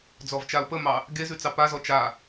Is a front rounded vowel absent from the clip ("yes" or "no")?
yes